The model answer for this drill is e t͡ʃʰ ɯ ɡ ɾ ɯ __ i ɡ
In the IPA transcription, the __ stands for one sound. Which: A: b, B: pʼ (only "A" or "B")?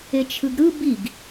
A